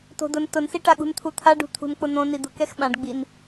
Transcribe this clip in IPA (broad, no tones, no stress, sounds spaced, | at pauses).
t o̤ d ʊ n t ʊ n s i ʈ a ɠ ṳ n t̪ʰ u t̪ʰ a ɖ ṳ t̪ʰ ṳ n k͡p ʊ n̪ õ n i d̪ ʊ k ɛ x ɓ ã ɖ ɡ͡b i n